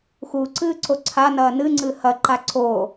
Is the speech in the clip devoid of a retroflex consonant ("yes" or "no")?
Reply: yes